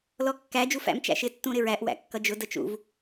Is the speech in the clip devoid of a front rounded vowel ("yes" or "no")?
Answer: yes